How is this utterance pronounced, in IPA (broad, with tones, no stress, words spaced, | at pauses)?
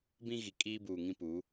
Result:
bĩ˦ɣi˨ kʼiː˦buː˨ŋĩ˦ pu˨˦